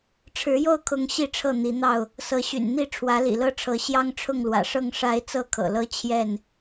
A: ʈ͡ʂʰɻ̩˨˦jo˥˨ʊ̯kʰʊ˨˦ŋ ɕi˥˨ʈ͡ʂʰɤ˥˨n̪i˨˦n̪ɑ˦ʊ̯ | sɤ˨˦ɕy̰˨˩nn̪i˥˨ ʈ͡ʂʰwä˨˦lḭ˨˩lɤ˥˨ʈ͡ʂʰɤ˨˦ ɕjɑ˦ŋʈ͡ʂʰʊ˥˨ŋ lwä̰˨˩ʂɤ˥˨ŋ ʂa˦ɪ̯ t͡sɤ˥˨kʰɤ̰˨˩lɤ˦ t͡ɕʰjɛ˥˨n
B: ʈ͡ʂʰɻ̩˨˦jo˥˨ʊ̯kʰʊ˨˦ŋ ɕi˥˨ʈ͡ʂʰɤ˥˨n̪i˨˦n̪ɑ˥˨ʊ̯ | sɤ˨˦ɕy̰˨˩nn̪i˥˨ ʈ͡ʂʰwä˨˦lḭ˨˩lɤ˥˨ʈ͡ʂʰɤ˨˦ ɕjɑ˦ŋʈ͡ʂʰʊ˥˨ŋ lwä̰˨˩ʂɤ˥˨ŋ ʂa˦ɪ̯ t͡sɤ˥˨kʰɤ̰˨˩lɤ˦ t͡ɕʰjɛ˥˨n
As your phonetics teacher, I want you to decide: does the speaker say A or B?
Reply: B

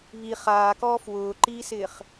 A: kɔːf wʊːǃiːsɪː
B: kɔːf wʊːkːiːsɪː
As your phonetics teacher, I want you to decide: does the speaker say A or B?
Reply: A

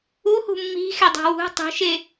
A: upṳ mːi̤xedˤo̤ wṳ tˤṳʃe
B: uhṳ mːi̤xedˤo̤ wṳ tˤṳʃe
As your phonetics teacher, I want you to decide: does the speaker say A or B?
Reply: B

